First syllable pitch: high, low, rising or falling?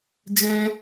high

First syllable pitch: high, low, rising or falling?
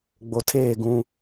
low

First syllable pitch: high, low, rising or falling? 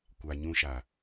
low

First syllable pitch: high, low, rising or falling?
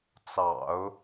low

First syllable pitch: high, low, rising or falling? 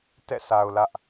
falling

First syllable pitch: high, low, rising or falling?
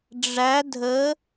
rising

